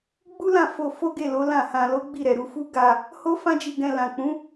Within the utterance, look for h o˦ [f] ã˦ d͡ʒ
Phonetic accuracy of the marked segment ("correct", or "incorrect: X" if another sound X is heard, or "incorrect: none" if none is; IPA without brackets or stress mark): correct